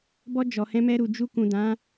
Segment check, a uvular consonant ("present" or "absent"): absent